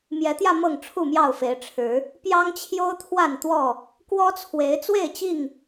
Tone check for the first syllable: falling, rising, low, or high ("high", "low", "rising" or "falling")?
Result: rising